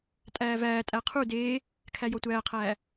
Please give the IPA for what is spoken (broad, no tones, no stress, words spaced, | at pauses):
tʼæːvæːtʼæ qʰu deː | kʰæjɔtʷæːqʰæː